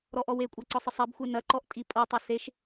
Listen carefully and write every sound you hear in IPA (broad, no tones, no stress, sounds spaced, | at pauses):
ɾ ɔ ʔ ɔ w e kʷʼ a ǀ ɔ sˤ ɨ sˤ ɛ b xʷ e n ɐ ǃ ɔ ʔ tʼ i pʼ o tˤ o s e ʃ